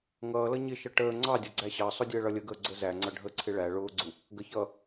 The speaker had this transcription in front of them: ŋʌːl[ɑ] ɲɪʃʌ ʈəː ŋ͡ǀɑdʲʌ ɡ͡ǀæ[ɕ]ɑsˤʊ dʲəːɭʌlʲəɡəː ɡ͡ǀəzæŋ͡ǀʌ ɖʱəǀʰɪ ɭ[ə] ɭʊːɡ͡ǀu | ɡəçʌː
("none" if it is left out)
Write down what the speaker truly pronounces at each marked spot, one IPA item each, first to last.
ʌ, ɕ, æ

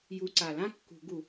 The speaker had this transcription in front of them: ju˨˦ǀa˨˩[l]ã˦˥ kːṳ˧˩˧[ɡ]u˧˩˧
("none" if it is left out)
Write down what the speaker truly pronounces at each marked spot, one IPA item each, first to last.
l, ɡ

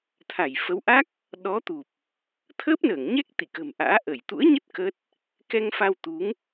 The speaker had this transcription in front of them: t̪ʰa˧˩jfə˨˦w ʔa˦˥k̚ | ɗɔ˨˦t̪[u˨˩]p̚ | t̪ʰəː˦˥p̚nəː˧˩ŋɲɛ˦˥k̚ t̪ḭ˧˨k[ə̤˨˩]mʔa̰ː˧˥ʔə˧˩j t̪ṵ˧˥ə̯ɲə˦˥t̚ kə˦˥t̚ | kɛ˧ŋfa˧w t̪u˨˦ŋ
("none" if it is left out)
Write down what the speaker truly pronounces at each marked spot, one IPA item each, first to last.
u˨˩, ə̤˨˩

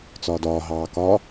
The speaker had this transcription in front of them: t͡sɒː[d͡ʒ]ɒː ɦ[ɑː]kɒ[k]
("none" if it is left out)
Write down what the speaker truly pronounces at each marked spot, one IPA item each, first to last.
d, ɑː, none

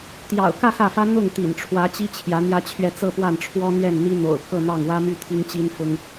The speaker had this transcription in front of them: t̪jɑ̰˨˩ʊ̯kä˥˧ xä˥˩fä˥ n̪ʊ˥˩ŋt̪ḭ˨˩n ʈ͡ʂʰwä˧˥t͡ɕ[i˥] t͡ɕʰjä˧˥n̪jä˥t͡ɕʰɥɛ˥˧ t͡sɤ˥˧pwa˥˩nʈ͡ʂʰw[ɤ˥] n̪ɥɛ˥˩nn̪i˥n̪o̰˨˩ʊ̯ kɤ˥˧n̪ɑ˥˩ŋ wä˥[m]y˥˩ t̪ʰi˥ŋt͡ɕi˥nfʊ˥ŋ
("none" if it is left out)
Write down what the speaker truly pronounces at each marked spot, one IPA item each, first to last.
i˥, ɔ˥, m

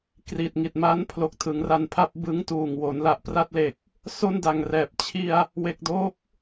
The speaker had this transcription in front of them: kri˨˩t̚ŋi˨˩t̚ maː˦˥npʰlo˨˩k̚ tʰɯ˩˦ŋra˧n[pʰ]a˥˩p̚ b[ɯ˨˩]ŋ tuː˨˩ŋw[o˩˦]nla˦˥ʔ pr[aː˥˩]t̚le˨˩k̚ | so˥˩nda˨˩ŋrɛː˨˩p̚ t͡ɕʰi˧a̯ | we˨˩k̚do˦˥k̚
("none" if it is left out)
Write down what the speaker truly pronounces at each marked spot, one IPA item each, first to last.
pʰ, ɯ˦˥, o˩˦, a˥˩

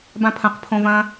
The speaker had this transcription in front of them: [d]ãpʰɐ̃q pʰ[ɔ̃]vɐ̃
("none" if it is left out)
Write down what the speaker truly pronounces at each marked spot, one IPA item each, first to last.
b, õ

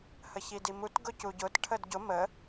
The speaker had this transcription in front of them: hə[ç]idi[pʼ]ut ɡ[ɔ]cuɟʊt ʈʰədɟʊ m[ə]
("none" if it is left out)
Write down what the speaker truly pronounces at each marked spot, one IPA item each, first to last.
ç, m, ʊ, ə

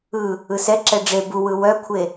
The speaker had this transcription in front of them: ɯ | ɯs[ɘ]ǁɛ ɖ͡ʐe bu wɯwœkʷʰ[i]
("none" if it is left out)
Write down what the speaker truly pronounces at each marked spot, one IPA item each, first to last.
ɛ, e

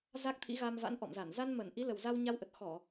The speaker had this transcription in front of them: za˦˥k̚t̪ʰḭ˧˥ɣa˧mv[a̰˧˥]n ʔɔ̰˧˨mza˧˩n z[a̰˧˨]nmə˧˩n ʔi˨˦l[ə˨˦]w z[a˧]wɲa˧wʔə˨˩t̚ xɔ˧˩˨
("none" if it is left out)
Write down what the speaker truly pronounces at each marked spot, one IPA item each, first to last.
a̰˧˥, a˧, ə˨˩, a˧

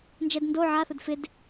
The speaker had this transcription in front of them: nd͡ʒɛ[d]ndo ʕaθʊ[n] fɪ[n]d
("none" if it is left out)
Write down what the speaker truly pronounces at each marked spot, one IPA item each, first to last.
d, d, none

